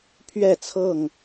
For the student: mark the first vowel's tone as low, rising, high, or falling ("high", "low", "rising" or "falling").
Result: falling